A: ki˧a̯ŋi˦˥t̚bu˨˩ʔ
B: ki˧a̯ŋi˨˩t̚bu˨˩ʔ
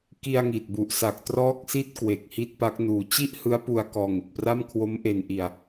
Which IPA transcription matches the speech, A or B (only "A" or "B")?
B